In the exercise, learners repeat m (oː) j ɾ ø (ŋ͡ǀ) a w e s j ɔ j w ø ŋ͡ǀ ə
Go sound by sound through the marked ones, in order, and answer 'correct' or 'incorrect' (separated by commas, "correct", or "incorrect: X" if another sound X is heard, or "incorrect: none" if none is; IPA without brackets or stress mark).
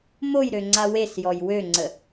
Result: incorrect: o, correct